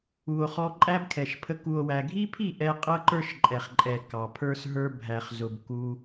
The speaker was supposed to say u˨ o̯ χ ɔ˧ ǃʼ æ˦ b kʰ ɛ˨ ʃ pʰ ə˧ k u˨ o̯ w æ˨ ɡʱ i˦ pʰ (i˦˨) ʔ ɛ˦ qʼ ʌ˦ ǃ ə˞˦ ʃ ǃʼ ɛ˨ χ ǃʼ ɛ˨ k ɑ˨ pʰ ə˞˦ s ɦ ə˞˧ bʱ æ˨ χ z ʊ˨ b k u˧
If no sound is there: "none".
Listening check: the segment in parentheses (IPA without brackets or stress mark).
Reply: i˦˨